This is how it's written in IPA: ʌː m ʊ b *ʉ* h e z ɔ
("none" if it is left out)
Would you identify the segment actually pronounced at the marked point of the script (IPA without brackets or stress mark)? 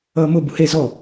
u